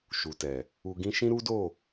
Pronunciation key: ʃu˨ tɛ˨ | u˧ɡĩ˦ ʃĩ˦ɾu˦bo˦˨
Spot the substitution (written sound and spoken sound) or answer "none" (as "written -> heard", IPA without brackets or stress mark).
b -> d